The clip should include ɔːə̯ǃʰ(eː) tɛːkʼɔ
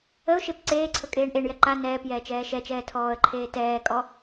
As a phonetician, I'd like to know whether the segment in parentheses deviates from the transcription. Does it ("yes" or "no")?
no